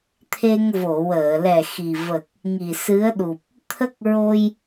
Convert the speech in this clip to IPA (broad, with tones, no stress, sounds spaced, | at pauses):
t̪ʰ e˧ ŋ v o˨˩˨ w əː˨˩˨ l ɛ˨˩ x i˨˩ v ə˨˩ k̚ | ŋ i˨˩ s ɨ˧˥ ə̯ ɗ u˨˩ p̚ | t̪ʰ ə˦˥ k̚ ɹ o˧ j